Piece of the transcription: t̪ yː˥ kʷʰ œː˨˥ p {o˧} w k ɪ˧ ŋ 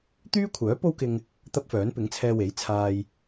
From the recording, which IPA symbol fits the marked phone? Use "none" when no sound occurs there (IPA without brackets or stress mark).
o˥